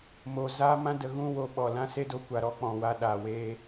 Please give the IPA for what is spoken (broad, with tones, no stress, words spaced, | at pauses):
mo˨ zaː˦mã˦ də˧ɣũ˦ wo˨ɓɔ˨ lã˦se˦do˨˦kʷa˨ ɾɔ˧k͡pɔ̃˨wa˧ ɗa˨ weː˦